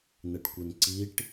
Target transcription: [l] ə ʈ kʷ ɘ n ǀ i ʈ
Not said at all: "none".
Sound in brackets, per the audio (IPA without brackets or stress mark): n